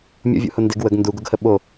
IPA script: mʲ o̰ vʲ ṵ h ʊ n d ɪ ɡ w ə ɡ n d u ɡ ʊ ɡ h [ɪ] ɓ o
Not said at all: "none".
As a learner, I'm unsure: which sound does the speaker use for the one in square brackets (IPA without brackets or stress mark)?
ə